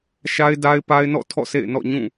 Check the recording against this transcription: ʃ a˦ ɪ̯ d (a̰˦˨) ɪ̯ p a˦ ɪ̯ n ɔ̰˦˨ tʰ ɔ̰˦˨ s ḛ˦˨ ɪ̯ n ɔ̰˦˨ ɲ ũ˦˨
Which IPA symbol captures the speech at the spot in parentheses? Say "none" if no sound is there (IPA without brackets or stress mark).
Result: a˦